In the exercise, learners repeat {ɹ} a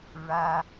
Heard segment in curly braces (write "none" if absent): ɹ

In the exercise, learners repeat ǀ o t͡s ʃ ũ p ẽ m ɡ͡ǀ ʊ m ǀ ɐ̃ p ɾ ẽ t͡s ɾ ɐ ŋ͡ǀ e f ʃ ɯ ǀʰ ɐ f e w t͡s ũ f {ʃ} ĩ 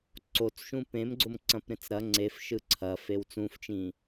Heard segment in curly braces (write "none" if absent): t͡ʃ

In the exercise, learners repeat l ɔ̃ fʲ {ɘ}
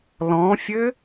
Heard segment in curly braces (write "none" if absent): ɘ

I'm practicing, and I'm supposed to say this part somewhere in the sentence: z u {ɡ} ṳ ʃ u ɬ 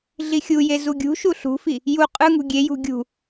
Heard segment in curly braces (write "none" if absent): ɡʲ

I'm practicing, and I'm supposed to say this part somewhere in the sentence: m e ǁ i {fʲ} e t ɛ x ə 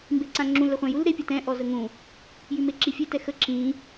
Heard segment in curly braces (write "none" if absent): fʲ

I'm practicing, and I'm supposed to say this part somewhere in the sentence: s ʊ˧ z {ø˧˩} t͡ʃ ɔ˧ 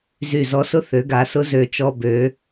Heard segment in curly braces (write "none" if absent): ø˧˩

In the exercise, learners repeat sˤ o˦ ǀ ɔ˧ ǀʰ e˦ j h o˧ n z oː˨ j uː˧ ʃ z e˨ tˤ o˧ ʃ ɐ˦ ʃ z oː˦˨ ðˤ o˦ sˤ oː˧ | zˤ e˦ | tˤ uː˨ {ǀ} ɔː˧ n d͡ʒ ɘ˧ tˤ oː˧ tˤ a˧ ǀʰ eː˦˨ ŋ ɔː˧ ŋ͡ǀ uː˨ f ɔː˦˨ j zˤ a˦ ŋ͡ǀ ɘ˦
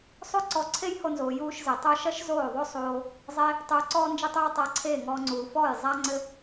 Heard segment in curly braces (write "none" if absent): ǀ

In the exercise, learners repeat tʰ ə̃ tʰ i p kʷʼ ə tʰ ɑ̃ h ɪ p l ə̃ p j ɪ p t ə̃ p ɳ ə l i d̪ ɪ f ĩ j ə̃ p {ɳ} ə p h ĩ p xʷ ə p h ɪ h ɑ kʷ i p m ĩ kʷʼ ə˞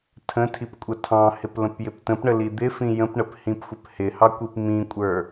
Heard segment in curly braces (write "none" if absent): ɳ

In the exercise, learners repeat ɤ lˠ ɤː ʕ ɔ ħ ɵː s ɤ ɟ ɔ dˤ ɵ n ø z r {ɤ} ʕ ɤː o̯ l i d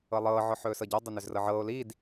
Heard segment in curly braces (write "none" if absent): ɤ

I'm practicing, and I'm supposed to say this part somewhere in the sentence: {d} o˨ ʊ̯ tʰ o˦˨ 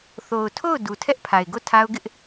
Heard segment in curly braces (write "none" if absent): θ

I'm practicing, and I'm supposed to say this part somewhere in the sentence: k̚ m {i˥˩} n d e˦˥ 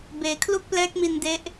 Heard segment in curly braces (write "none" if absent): i˧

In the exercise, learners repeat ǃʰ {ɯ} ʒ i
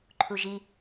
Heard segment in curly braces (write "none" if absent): u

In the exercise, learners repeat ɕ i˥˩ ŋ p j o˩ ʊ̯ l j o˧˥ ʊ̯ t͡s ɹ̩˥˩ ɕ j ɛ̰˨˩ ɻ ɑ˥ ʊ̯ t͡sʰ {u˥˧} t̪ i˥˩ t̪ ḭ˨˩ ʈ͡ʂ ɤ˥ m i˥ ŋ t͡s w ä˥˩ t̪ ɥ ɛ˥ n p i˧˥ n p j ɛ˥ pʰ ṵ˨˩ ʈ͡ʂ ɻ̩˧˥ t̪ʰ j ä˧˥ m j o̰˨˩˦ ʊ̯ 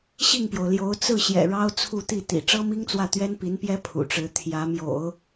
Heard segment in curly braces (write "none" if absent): u˥˧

